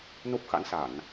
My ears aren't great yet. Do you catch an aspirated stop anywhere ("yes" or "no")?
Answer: no